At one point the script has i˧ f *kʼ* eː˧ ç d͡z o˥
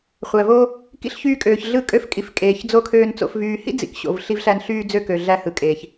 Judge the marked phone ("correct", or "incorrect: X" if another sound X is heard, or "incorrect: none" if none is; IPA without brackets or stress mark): correct